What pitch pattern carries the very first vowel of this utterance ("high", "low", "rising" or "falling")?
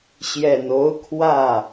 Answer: low